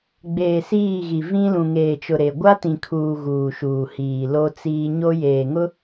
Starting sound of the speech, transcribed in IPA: ɡ͡b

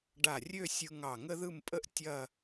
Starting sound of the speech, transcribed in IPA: ɖ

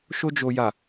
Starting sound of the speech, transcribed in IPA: ʃ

